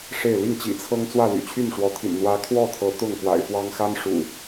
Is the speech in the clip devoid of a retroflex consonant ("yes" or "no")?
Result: no